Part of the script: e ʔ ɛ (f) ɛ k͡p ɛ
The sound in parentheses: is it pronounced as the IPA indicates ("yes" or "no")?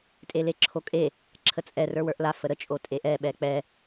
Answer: no